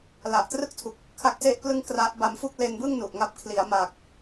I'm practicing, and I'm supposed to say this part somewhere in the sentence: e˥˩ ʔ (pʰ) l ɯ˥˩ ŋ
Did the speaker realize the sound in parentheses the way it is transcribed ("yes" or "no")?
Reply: no